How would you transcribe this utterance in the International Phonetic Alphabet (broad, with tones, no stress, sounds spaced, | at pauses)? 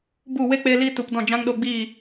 b u˦˨ w e˦ k͡p e˧ l iː˦ t u˨ p d ɔ̃˦˨ d͡ʒ ã˦ ŋ ɗ o˧ ɡ͡b i˦˨